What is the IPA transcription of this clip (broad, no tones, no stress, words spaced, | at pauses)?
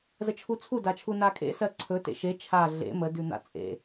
zət͡ʃʰut͡sʰu dat͡ʃʰunakʼḛ sɜǀʰɵ tḛʃe t͡ʃʰa ɮḛ mə dʉn̪a̰t͡sʼḛ